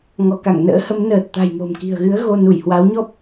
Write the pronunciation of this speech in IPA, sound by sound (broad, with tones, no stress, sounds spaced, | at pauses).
ŋ ɔ˧˩ k a˧˩ ŋ n ə̰ː˧˥ h ə˨˦ m n əː˨˩ t̚ t̪ a̤˨˩ j m o̤˨˩ m k i̤˨˩ ə̯ ɣ ɨ˨˦ ə̯ ɣ o˧ n u˧˩ j h w a˨˦ w ɲ ɔ˦˥ p̚